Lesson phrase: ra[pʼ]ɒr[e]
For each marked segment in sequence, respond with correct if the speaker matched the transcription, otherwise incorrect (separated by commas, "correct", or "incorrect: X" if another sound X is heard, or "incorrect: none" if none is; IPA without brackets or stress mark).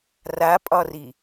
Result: correct, incorrect: i